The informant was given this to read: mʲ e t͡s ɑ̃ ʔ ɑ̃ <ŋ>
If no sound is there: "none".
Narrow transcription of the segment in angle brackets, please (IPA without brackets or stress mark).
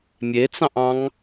ŋ